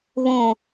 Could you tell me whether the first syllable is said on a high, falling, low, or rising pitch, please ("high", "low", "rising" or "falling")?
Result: low